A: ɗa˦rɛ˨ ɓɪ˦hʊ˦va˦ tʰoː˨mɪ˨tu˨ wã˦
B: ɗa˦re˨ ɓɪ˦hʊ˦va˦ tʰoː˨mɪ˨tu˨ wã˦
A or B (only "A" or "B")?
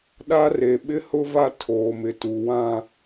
B